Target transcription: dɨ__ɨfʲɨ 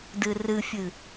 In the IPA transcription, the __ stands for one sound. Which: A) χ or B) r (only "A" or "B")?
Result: B